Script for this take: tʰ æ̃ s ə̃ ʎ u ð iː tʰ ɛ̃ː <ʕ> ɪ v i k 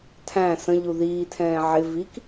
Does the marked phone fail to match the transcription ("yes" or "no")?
no